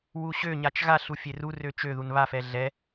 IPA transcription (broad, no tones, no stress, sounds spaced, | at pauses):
w u ɕ ø ɲ a t͡ʃ ɣ a ɬ u fʲ e r u r ø t͡ʃ ø ð u n β a f ɛ ɮ ɛ